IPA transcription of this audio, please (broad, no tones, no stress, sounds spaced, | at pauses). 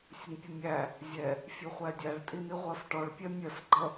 sʲ ə n pʲ ə mʲ æ | zʲ ɛ | fʲ u χʷ æ dʲ æ ɭ tʼ i n i ʁʷ ɜ f ʈ ɔ ɭ pʲ ɛ mʲ ɛ f ɡ͡ǃ ʌ